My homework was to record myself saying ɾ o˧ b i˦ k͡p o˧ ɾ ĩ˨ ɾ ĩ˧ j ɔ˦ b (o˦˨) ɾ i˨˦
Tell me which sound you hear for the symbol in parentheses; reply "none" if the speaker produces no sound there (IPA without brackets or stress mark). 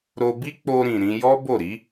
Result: o˦˨